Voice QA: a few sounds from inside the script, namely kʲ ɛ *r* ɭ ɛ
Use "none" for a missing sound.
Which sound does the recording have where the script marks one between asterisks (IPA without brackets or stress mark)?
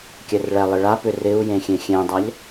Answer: r